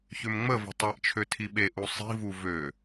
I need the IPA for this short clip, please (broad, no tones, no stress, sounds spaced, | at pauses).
ç ø m ŋ͡m ə v ə̤ tˤ ɛ ʔ t͡ʃʰ ø tʰ i ɓ e ʔ u sˤ i̤ v u v ø